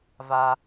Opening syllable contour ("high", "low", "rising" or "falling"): low